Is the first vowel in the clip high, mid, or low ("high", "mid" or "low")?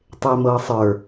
mid